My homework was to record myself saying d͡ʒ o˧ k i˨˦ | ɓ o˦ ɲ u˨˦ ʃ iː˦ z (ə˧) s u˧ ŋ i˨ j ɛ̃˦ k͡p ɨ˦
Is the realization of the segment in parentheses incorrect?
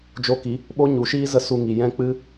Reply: yes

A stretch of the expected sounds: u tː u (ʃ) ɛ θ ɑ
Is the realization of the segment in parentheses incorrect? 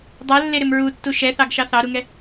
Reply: no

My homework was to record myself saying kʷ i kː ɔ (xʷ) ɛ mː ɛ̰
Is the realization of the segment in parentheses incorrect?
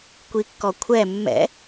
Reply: yes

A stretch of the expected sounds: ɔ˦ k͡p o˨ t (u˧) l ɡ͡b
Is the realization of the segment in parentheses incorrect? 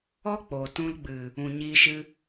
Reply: yes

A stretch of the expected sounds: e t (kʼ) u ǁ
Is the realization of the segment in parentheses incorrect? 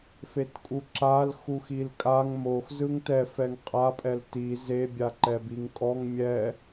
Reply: no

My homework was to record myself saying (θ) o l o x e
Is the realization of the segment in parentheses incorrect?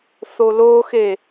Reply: no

